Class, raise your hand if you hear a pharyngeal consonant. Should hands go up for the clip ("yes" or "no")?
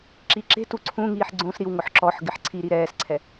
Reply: yes